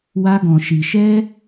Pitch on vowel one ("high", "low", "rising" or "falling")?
high